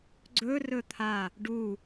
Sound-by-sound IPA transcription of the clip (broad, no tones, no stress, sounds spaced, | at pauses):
ɡ͡ǀ ɵ r ɵ t̪ʰ a | ɖ u